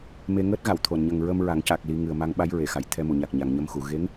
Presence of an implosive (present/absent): present